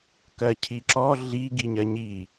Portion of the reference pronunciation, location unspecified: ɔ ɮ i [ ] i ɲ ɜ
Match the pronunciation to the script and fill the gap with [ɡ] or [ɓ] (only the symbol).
ɡ